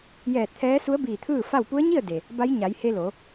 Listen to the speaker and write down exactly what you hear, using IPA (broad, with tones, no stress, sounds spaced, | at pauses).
j ɛː˧˩ t̚ t̪ʰ ɛː˧˥ s u˧˥ ə̯ b iː˧˩ t̪ʰ ɯː˥˨ f a˥˨ w p u˧˥ ə̯ ɲ i˥˨ ə̯ d e˩ | b a˧˥ j ɲ a˩˧ j h e˧ l o˩˧